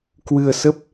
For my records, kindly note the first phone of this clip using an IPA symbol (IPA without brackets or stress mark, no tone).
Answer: k